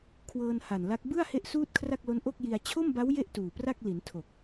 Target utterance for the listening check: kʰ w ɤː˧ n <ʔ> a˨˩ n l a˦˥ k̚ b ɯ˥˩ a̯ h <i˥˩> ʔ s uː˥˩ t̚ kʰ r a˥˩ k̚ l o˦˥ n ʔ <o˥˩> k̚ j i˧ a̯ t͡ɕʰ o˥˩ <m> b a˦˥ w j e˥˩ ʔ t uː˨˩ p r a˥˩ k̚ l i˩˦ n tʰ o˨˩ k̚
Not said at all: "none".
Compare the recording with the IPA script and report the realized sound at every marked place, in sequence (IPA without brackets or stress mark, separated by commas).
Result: h, e˥˩, o˥˩, m